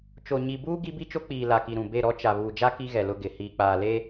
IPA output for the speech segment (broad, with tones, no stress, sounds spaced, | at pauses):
t͡ʃ o˨ ɲ i˨ b uː˦ ɡ i˦ b i˦ t͡ʃ o˦ k͡p iː˨ l a˨ k i˨ ɾ ũ˨ b e˦˨ ɾ ɔ˦ t͡ʃ a˨ β uː˨ d͡ʒ a˦ k i˦ ɣ ɛ˨ l ʊ˦ ɡ ɪ˨˦ h iː˨ k͡p aː˨ l e˦